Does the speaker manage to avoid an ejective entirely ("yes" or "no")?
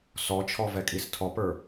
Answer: no